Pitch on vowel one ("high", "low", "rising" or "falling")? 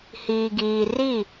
low